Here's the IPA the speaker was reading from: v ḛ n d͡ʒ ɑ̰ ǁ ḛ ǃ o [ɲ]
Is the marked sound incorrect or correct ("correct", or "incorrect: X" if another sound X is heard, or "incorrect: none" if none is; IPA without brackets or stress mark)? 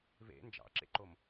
incorrect: m